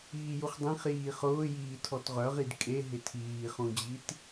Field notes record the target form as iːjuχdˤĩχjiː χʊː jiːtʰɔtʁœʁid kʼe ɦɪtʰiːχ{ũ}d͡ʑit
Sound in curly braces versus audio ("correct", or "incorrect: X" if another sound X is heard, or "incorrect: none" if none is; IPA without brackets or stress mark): correct